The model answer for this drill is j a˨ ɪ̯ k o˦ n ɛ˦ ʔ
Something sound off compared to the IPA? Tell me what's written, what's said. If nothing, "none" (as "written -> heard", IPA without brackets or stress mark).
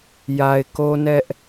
none